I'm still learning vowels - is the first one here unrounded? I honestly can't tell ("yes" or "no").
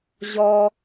no